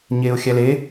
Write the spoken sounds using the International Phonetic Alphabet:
ɲeːʊ̯xʲæle

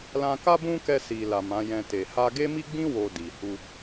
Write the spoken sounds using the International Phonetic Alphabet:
lã˧ka˦ bũ˦kɛ˧ si˨ la˨mã˨˦jɛ̃˧te˨ ha˧ɡe˦mi˦ɡ͡bĩ˦ wo˧di˨ hu˧

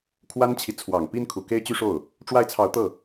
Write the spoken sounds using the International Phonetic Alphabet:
kʰwa˥nt͡ɕʰi˨ t͡sʰwɑ˨˩ŋpi˥nkʰu˨˩ ke˥ɪ̯t͡ɕy˥ʂo˥˩ʊ̯ | ʈ͡ʂwa˥˩ɪ̯t͡sʰɑ˧˥ʊ̯t̪ɤ˥˩

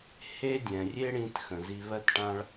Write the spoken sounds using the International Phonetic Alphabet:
he˦ dʲɛ̃˨rʲe˦ɽĩ˧t xə̃˨zi˧ βɜ˦tʈã˦ɭ

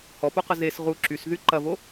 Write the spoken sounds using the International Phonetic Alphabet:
hɔpoqə zes ʁu ǁysðy ǃɐvo

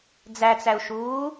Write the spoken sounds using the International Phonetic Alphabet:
d͡zæt͡sæu̯ʃuː

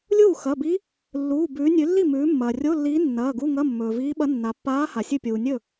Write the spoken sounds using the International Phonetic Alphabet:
lʲuː˥˩xɐ˩˧˩bi˧˥ | lːuː˩˧˩ bʉː˩˧ nʲʉ˩˧lːi˥˩mʉː˩˧ mːɐː˩rʲo˧˥˧lːiː˧˥ nːɐː˩˧˩ɡu˧˥˧ŋɐ˧˥˧ mːɵː˩viː˧˥ɓɐ˧˥ nːa˩˧pːaː˧˥ ha˩sʲɨ˥˩pʲuː˩ nʲɵ˥˩

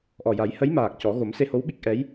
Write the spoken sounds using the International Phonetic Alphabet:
ʔɔ˨˩ja˨˩˦jhə˧˥jmaː˨˩k̚ cɔ˨˩˦ɣo˨˩˦m se˧ho˧˥wɓi˦˥k̚ ʔɛ˧˥j

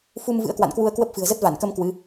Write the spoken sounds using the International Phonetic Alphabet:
fu˧m vɨ̰˧˥ə̯kwa̰˧˨nkwu˧ə̯kwə˦˥p̚ fɨ̤˨˩ə̯zə˦˥t̚va˧˩nkə˧m kwɨ˨˦

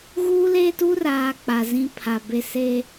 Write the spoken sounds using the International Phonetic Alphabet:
ɣuː˦leː˦tu˦raː˨ k͡pa˨zĩ˦ pʰa˨be˦ se˦

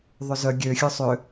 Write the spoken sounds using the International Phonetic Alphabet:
ðˤʏzœ ɡʲø xʲœsˤʏ

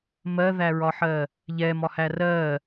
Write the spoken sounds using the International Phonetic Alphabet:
mɜðæɹɒħɜ | ʎɛmɒhæ rɜ

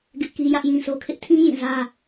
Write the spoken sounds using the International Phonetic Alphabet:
ɡɪ˦ʔki˦ jä˦ʔjĩ˦sʰo˦kʰɪ˦ʔ tʰĩ˦ jĩ˦˨zä˦

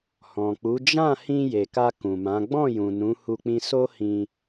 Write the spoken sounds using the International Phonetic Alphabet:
hɔ̃˨k͡pu˨˦ d͡ʒã˦˨hĩ˧ je˨ka˧ kũ˨mã˨˦ ɡ͡bɔ̃˦˨jũ˨ nũ˨˦hu˧k͡pĩ˧ so˦hĩ˧

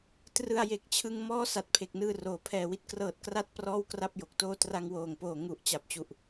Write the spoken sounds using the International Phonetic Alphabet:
trɯ˧a̯ je˨˩k̚t͡ɕʰɯ˧ŋ mɔː˦˥ sa˨˩t̚pʰe˨˩k̚nɯː˧ roː˩˦pʰɛː˨˩wi˦˥t̚ krɤː˨˩t̚ kra˦˥t̚ prɔː˥˩wkra˥˩p̚jo˨˩k̚toː˥˩ tra˧ŋwoː˨˩ŋpoː˨˩ ŋu˨˩ʔ t͡ɕa˨˩p̚t͡ɕu˨˩ʔ

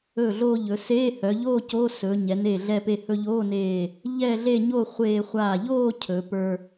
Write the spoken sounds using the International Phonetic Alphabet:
ɵː˧˩ɮoː˧ ʎɵ˩˧ seː˧˥˧hœ˩˧ʎoː˥˧ co˧˥˧sɵ˩˧ ɲɛ˩˧ne˧˩ɮɛ˧pe˧ hɵ˧ʎoː˧˥˧neː˧˩ | ʎɛ˥˧ɮe˥˧ɲo˥˧ χʷeː˧χʷa˧˩ʎoː˥˧ cʰɵ˩˧ pə˞˧

